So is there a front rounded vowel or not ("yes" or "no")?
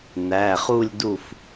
no